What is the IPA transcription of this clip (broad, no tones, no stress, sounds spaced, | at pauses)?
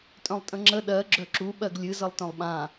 tʼ œ̃ lˠ tʼ ə̃ ŋ͡ǁ ə ɗ ɜ ɡ͡ǁ œ ǁ u ɓ ɜ ɡ lʲ ɨ z ə lˠ t œ̃ lˠ ɓ ã